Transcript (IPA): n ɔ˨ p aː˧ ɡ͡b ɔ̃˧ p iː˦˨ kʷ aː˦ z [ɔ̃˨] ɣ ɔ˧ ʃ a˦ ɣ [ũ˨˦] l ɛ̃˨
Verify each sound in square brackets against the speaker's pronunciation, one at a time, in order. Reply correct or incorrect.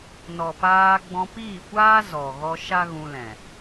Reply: incorrect, incorrect

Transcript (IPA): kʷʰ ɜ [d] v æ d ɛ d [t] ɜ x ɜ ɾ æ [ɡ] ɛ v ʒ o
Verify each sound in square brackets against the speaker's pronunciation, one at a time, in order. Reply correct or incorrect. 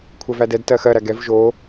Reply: incorrect, correct, correct

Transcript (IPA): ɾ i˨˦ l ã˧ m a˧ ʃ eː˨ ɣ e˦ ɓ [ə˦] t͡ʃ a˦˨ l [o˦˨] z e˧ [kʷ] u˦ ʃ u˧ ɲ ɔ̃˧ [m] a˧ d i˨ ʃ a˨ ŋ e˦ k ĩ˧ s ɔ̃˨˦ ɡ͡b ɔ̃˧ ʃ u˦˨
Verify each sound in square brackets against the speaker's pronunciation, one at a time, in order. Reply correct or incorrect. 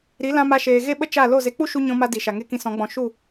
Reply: correct, correct, incorrect, correct

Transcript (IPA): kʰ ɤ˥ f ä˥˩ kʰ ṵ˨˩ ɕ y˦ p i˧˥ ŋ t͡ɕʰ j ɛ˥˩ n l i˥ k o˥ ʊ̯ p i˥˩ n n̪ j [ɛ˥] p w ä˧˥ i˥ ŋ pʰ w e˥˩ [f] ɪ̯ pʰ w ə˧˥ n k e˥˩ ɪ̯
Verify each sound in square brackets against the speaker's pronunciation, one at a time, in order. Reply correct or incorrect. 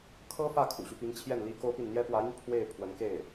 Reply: correct, incorrect

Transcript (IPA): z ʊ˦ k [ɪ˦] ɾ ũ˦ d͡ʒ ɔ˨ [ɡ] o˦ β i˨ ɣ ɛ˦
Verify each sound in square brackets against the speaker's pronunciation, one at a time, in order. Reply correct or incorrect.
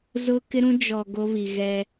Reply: correct, correct

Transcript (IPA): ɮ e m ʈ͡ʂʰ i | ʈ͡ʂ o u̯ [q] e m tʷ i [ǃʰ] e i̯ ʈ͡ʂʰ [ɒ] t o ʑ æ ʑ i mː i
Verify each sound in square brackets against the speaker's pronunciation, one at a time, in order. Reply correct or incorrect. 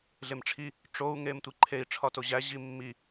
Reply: incorrect, correct, correct

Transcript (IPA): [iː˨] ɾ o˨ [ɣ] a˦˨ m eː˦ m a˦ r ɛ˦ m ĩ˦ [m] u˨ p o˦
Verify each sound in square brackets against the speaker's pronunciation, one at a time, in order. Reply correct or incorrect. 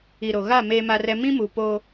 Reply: incorrect, correct, correct

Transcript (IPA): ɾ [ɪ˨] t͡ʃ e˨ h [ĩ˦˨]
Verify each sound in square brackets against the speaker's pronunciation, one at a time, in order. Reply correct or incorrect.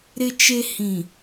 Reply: correct, incorrect

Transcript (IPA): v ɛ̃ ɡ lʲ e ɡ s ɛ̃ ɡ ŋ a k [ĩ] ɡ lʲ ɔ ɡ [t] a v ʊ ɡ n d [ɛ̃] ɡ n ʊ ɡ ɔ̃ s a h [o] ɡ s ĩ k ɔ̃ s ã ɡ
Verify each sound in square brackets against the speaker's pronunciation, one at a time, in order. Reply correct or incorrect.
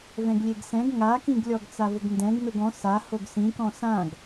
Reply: correct, incorrect, correct, correct

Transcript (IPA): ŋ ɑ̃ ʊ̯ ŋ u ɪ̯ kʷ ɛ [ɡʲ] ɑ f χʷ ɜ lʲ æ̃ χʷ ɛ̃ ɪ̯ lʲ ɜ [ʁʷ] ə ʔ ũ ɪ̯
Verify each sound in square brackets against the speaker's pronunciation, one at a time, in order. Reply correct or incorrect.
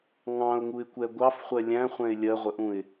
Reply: incorrect, correct

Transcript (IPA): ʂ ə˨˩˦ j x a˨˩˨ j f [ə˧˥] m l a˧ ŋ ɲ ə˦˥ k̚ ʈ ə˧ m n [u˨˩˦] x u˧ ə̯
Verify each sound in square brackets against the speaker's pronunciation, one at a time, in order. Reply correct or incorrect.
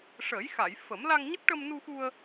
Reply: incorrect, incorrect

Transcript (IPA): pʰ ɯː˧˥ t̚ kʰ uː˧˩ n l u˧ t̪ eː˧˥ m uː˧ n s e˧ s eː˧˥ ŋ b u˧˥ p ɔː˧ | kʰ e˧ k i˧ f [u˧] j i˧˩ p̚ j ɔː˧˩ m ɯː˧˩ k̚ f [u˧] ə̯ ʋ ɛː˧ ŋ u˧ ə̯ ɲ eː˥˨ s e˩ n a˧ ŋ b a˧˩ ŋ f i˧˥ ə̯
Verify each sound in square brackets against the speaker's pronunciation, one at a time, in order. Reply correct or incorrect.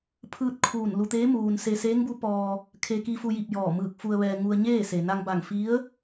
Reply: correct, correct

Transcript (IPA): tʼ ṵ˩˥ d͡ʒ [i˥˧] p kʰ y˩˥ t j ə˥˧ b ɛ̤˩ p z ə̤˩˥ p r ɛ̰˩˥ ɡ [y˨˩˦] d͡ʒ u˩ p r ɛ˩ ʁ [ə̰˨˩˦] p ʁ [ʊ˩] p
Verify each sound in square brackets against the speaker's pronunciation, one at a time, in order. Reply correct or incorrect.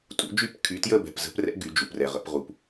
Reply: incorrect, correct, correct, incorrect

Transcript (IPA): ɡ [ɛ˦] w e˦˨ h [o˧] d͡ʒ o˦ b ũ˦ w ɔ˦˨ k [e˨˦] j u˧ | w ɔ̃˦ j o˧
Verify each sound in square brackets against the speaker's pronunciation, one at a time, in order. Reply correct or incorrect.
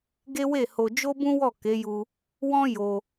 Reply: incorrect, correct, correct

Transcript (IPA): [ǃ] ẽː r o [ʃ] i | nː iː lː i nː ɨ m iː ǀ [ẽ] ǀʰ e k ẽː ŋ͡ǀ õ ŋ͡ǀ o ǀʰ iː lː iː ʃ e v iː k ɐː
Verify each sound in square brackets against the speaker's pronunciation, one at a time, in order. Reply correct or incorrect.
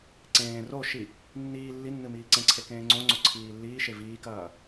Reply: incorrect, correct, correct

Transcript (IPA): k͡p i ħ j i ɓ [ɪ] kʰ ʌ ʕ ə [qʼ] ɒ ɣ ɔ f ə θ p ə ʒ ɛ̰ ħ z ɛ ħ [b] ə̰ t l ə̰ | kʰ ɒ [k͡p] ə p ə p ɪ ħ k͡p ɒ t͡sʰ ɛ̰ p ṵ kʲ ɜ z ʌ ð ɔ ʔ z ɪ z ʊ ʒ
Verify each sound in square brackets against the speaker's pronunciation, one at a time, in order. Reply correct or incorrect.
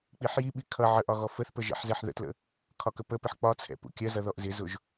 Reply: incorrect, incorrect, incorrect, incorrect

